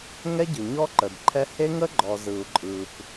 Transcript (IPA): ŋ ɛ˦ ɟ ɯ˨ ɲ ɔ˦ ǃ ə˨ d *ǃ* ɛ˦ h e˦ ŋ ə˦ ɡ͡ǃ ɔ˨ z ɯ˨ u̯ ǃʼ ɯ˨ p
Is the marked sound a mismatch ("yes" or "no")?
yes